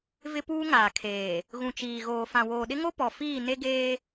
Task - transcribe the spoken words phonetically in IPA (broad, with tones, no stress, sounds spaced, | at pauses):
v ɪ˦ p uː˦ ŋ aː˨ kʰ eː˨ | ɣ ũ˨ t͡ʃ iː˨ ɣ oː˨ f ã˨ w oː˨ ɗ ɪ˦ ŋ o˦ p ɔ˨ f iː˦˨ n e˦ ɡ eː˦